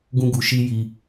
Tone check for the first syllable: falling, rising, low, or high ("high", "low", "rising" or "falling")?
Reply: high